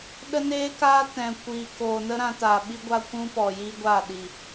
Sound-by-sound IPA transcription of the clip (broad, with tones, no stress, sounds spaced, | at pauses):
ɗ ə˦ n eː˦ k aː˦ t ɛ̃˨ kʷ iː˨ k oː˨ n ə˦ ɾ ã˧ t aː˨ ɓ i˦ ɡʷ a˦ kʷ ũ˦ p ɔ˨ j i˦ ɡʷ a˦˨ ɗ i˨